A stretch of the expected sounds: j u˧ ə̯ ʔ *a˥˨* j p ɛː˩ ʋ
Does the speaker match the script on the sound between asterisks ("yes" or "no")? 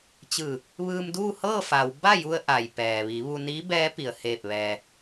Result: no